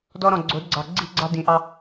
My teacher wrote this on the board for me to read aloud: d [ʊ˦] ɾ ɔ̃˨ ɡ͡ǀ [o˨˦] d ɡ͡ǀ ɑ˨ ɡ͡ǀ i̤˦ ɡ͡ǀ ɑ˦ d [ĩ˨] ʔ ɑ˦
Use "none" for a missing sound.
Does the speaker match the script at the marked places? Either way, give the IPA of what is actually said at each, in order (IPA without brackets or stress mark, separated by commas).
ɔ˦, o˨˦, ĩ˨